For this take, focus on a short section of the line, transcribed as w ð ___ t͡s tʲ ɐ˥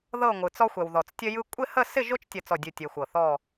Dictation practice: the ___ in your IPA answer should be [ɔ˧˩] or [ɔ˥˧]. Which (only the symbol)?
ɔ˧˩